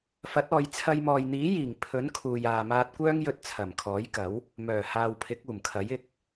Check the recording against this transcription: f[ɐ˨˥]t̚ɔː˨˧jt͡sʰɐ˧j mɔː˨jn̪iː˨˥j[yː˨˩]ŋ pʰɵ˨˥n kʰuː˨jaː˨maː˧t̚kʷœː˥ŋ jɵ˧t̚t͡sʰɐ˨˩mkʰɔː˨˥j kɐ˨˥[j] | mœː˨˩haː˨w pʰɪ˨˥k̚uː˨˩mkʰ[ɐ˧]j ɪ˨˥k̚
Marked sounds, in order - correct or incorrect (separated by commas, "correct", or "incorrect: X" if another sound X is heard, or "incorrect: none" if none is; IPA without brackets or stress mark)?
correct, incorrect: iː˨˩, incorrect: w, incorrect: ɐ˨˥